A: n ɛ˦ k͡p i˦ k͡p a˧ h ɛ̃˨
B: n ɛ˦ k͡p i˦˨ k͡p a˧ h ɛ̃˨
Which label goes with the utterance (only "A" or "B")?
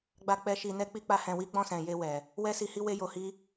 B